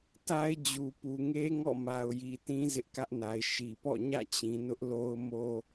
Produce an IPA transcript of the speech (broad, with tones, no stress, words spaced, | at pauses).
ta˦ɪ̯d͡ʑu˨ pu˨ŋe˦ ŋɔ̰˦˨ma˨ʊ̯ji˨ tĩ˦zɪ˦ʔkä˦ʔna˨ɪ̯ ʃi˨pɔ̰˦˨ ɲä̰˦˨t͡ɕĩ˨nʊ˦ʔ lo˦ʊ̯mo˦